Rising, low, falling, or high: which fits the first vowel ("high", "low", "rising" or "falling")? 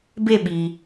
falling